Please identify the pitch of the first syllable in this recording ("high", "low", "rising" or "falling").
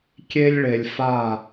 high